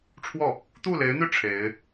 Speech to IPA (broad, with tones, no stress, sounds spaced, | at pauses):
ʈ͡ʂʰ w ɔ˥˩ | t̪ u˥˩ l e˧˥ ɪ̯ n̪ y˥˩ ʈ͡ʂʰ e˧˥ ɪ̯